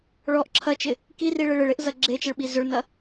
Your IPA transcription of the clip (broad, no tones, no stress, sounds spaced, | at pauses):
ɭ ɔ ʔ ǁʰ ɐ t͡ʃ ɪ | k i r i ɭ ɪ ɭ ɪ ɭ e ʔ z ɐ ɡ͡ǁ e t͡ʃ ɪ ɭ ɓ i z ʏ ɭ n ɐ